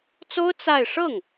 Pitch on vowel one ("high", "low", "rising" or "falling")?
high